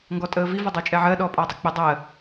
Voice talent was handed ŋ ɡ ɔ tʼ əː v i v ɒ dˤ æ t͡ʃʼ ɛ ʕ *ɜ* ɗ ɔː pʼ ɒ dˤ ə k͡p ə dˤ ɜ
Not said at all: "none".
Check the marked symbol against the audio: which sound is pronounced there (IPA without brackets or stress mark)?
ɜ